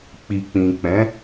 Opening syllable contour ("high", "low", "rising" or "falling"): low